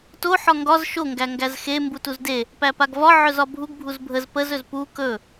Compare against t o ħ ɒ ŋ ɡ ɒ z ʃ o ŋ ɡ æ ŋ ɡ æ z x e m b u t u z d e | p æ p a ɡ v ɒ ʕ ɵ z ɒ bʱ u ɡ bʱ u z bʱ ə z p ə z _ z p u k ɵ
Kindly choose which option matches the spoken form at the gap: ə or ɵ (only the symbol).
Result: ɵ